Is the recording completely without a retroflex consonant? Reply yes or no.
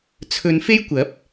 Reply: yes